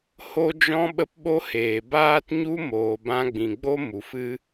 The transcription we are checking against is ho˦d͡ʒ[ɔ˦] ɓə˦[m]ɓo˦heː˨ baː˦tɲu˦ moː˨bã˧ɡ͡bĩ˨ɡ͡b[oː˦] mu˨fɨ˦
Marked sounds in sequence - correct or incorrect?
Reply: incorrect, incorrect, incorrect

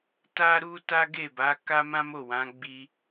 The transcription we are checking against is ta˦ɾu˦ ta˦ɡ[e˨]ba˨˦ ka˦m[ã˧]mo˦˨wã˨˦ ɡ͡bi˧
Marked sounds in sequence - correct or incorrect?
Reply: incorrect, incorrect

